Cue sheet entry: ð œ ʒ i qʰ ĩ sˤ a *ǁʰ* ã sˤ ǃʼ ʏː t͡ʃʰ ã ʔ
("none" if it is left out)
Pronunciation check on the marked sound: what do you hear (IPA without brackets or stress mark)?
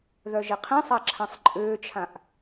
ǁʰ